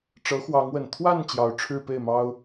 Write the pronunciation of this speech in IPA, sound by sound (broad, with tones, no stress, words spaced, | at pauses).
ʈ͡ʂɤ˧˥ xwɑ˧˥ŋwə˨˩n t̪ʰwa˥˩n t͡ɕjɑ˧˥ʊ̯ʈ͡ʂʰɻ̩˥˧ pe˥˩ɪ̯mɑ˥ʊ̯